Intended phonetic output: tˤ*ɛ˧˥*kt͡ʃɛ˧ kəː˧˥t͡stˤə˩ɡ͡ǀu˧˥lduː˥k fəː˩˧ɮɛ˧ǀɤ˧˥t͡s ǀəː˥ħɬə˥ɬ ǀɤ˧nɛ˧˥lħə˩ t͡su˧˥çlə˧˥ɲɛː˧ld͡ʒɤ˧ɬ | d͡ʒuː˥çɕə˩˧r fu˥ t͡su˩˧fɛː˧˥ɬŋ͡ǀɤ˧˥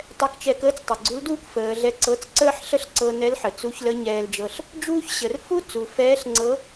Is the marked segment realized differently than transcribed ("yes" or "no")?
yes